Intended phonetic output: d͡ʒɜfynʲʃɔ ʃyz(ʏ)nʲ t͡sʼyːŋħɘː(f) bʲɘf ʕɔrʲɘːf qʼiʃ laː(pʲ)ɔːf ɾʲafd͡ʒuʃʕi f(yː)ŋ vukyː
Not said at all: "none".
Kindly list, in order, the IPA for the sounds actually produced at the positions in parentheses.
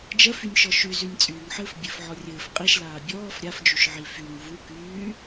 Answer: y, f, bʲ, y

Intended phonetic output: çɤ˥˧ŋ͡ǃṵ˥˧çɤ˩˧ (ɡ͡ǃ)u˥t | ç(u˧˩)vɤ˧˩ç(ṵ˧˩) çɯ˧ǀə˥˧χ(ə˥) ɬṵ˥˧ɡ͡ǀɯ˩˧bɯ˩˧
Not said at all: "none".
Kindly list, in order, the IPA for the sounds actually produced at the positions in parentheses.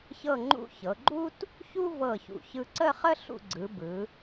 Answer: ɡ͡ǃ, u˥, ṵ˧˩, ə˥

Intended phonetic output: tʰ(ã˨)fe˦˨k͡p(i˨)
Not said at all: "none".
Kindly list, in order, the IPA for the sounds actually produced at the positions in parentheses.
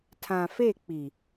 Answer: ã˨, i˨

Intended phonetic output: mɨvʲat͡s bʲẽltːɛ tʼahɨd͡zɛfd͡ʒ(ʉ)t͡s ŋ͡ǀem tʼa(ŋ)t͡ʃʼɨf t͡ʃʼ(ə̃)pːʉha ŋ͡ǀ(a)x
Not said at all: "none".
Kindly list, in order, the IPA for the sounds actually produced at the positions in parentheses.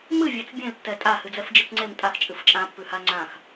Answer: ɨ, x, ã, ã

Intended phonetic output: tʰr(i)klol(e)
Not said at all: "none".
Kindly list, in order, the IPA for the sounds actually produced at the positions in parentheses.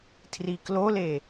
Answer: i, e

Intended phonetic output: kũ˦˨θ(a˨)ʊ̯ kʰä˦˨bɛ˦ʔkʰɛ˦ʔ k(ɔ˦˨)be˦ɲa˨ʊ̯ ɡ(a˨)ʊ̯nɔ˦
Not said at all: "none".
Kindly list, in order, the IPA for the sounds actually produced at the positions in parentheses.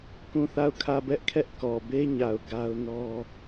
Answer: a˦˨, ɔ˨, a˦

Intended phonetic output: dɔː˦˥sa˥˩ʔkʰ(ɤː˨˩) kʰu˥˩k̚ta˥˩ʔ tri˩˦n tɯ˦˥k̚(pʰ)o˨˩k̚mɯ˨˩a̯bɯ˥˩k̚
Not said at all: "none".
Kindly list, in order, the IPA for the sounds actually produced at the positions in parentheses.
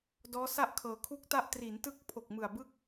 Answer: ɤː˨˩, pʰ

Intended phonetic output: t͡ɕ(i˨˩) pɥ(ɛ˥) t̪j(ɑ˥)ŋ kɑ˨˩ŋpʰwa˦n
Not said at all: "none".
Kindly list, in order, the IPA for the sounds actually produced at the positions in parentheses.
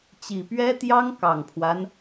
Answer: i˨˩, ɛ˥, ɑ˥

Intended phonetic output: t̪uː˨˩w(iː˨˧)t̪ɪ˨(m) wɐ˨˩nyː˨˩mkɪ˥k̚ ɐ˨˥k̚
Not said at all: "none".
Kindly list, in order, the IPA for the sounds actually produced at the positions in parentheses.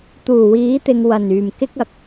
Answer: iː˨˥, ŋ

